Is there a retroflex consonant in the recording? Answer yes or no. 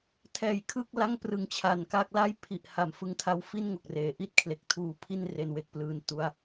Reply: no